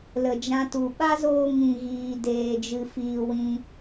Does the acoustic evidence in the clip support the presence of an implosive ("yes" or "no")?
yes